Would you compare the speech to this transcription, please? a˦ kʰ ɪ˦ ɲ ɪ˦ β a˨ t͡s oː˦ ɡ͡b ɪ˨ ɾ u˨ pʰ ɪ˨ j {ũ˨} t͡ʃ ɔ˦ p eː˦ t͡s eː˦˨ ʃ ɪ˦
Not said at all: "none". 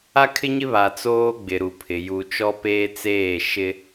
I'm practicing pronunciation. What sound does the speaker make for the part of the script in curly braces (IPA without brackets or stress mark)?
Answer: u˨